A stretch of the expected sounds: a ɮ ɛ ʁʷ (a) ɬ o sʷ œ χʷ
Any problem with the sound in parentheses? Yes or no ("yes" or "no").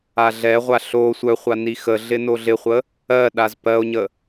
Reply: no